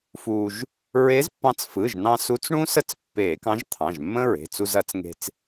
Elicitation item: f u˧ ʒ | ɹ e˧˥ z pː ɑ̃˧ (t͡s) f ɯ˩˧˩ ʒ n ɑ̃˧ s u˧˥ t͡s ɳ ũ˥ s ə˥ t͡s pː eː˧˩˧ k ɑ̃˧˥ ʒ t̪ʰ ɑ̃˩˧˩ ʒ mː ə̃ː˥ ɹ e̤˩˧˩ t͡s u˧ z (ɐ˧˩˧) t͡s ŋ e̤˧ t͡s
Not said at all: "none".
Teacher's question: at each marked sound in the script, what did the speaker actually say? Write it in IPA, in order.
t͡s, ɐ˧˩˧

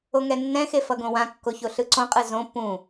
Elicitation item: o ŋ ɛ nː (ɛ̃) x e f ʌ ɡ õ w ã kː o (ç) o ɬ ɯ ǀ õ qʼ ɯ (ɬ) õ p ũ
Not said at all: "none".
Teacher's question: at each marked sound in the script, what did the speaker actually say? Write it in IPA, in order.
ɛ̃, ç, z

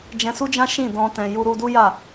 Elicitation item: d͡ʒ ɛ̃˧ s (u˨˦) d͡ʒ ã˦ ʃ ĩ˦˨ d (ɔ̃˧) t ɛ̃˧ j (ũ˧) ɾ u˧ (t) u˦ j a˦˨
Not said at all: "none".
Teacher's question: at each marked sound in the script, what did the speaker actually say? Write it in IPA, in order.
u˦, ɔ̃˧, u˧, d

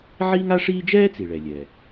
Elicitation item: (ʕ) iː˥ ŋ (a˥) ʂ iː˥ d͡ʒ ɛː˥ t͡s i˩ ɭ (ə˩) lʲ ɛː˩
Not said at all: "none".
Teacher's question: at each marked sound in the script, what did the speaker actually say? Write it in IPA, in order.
ʕ, a˥, ɛ˩

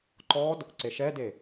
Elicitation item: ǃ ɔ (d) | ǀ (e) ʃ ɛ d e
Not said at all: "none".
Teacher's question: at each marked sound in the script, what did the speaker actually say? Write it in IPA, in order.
d, e

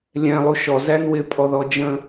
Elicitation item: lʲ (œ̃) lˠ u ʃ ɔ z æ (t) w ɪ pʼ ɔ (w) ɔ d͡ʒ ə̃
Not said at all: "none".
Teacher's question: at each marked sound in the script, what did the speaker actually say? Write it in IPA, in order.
ɛ̃, n, ð

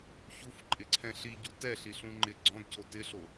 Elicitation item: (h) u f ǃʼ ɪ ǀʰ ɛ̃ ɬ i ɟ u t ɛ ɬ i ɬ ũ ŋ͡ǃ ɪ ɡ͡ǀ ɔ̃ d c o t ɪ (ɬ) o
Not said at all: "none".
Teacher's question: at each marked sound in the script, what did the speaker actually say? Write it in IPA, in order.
ç, ɬ

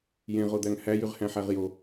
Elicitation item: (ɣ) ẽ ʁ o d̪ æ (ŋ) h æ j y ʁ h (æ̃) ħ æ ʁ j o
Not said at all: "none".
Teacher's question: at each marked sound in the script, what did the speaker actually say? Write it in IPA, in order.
j, ŋ, æ̃

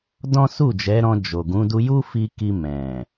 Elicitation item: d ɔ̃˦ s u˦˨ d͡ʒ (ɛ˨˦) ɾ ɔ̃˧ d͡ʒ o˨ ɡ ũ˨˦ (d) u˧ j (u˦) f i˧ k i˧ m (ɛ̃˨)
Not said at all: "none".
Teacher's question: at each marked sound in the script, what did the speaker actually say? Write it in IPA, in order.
ɛ˨˦, d, u˦, ɛ̃˨

